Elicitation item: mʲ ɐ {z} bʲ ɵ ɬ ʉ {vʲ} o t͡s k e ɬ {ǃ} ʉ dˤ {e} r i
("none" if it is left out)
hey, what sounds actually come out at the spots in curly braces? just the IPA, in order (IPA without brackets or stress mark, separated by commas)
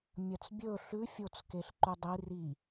t͡s, fʲ, ǃ, i